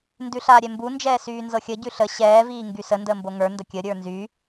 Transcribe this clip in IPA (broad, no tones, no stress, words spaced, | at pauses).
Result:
ndʉɬaːɾʲɛmbu nd͡ʒɛːsyːnzɤxʲə ɟʉɬə ɕɛː viːŋɡysə ndəːmboŋə˞ ndəkʲə ɾʲə˞nzy